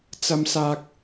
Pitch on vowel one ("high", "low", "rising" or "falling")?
high